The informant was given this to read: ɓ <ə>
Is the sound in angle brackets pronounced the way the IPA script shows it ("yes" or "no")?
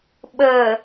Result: yes